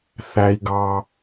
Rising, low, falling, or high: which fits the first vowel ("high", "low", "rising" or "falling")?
high